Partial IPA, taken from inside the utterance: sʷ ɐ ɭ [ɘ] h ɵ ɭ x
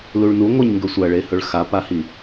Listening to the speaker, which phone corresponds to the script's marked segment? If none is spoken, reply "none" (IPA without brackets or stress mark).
e